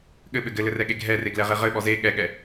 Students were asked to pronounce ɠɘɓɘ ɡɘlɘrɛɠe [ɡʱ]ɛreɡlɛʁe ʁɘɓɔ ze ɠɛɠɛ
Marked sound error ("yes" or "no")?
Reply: no